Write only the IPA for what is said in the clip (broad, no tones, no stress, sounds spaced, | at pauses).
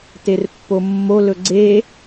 t e r pː o mː o l ɵ ɡ͡ǀ e